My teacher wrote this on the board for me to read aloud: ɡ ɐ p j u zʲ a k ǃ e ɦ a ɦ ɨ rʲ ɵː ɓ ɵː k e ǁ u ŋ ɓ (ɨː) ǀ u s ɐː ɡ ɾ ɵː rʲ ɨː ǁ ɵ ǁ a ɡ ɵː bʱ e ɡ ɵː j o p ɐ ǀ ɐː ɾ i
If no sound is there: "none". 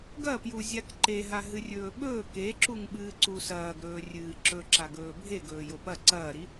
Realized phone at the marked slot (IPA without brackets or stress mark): ɨː